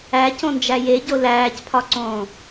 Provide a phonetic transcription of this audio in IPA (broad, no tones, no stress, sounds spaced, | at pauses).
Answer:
æ c õ n d͡ʒ æ j e ɟ o l æː c pʰ ɒ ǀ õː